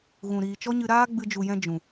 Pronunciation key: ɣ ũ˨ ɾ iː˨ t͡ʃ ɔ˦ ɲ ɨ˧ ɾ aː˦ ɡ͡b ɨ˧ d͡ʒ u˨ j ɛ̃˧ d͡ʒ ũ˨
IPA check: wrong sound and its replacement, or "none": none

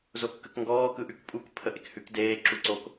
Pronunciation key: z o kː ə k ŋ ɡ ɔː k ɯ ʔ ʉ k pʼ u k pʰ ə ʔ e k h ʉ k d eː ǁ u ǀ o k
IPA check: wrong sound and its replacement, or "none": none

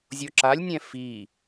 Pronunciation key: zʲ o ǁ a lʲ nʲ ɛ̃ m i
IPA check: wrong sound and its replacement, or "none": m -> f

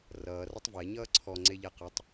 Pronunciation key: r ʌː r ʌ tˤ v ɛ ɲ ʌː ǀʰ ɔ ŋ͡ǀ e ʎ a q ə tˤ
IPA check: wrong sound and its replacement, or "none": none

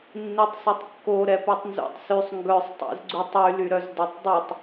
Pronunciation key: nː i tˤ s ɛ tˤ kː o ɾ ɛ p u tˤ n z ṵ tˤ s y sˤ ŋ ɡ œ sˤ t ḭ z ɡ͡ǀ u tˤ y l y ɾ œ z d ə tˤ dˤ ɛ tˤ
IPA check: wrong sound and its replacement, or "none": t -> tˤ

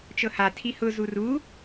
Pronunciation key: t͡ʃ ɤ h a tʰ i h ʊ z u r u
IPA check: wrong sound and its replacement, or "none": none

